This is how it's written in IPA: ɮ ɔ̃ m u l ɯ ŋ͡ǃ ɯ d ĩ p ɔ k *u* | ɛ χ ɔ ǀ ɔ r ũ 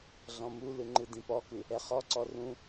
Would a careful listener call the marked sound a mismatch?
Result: yes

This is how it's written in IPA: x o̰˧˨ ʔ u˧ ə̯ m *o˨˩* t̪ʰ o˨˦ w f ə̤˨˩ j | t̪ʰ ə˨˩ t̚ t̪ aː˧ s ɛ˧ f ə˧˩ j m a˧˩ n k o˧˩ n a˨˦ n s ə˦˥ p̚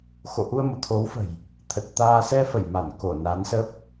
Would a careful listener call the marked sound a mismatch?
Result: yes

